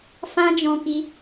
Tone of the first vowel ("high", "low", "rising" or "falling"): high